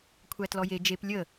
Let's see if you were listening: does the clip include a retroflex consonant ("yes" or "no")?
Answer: no